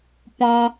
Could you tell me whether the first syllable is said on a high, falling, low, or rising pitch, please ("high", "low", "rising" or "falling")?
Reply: high